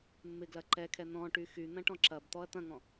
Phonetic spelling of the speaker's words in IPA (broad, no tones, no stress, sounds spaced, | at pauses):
mː ɪ ɡ l ɐ ǃ ɛ kʰ ɛ n̪ ɔ̃ ʈ y x y n̪ ɐ̃ ʈ ɔ̃ ǁ ɐ b t̪ ɔ ɐ̯ t̪ ɐ̃ ŋ ɔ̃